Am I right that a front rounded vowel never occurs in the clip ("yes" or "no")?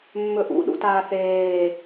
yes